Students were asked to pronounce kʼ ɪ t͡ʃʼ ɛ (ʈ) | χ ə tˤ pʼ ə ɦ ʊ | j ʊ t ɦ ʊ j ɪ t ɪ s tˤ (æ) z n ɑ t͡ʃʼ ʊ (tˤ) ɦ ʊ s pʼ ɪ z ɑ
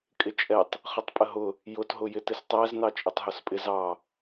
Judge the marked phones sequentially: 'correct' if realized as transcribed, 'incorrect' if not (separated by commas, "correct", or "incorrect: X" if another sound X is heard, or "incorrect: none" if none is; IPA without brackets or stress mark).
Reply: incorrect: tˤ, correct, correct